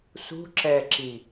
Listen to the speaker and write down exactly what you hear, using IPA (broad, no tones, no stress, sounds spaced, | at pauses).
s ṳ ǁ ɛ ǁ i